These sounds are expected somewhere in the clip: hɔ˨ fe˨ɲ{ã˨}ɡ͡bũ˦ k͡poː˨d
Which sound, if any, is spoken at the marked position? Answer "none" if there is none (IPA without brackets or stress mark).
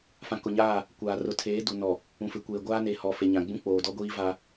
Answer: ã˨